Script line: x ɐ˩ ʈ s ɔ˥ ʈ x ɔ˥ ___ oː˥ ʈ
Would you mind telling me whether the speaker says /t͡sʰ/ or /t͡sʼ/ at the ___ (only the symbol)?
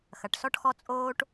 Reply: t͡sʼ